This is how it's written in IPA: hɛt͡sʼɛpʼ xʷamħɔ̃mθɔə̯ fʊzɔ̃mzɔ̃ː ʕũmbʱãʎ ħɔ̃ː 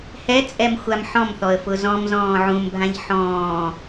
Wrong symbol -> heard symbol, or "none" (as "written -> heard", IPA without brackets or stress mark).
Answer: pʼ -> m